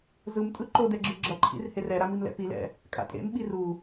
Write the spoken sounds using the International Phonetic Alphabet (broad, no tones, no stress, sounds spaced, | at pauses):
z ɯ m tʼ ɯ ǃ o d ɛ ɡ͡ǁ ɯ ɡ͡ǁ ʌ ǃʰ ḭ r h e r ɛ ɾ a m i m l ɛ̰ p i l ɛ̰ | kʼ a̰ tʼ ḛ m ɓ i r u